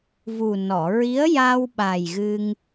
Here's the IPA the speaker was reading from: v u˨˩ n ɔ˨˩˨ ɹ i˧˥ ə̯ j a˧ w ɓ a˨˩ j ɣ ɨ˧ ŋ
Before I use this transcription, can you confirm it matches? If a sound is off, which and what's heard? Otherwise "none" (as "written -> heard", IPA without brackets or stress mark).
none